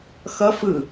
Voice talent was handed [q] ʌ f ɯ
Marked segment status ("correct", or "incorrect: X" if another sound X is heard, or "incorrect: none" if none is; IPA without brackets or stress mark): incorrect: x